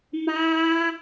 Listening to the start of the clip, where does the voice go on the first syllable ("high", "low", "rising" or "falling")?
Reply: high